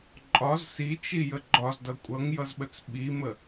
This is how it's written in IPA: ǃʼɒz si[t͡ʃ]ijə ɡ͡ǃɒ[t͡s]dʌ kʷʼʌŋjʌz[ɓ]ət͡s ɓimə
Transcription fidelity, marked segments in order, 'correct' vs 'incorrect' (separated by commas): correct, incorrect, correct